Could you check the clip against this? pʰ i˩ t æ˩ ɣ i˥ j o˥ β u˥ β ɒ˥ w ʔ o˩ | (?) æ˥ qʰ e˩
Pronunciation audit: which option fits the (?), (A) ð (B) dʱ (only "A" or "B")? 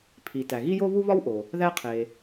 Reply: A